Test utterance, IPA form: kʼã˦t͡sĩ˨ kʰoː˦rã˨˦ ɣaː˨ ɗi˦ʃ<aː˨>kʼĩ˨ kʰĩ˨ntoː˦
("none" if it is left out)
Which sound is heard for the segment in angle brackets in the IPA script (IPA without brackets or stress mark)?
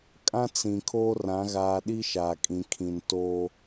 aː˨